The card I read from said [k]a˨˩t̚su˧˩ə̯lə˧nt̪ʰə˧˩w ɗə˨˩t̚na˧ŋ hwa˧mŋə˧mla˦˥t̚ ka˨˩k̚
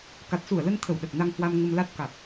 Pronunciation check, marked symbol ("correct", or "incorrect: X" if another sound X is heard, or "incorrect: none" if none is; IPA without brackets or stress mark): correct